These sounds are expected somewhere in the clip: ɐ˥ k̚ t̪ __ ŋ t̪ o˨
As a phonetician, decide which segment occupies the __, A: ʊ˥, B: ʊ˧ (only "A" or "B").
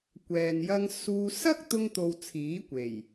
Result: B